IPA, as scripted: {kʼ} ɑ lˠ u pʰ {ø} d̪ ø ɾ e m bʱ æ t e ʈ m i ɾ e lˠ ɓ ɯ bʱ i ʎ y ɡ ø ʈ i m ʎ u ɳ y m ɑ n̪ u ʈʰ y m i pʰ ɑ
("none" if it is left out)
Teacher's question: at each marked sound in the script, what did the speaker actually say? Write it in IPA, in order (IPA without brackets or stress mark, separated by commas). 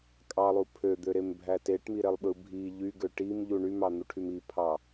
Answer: kʼ, ø